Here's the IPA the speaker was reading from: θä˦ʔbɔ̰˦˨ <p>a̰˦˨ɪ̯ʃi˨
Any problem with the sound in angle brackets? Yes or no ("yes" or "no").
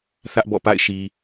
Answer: no